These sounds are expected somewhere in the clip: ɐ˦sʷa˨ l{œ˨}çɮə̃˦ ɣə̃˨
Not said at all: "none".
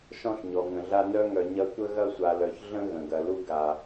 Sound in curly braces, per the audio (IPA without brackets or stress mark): œ˨